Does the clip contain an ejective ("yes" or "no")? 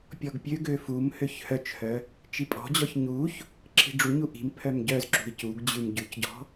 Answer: yes